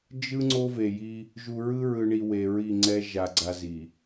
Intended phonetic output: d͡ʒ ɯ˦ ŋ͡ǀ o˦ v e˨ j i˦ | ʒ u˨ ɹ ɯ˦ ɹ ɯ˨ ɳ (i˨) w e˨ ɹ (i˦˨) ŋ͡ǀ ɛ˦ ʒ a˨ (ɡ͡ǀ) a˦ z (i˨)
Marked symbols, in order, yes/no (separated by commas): yes, yes, yes, yes